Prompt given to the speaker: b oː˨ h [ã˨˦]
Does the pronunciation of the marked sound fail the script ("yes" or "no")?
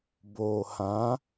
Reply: no